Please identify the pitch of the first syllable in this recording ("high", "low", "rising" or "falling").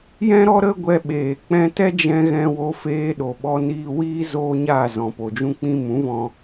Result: high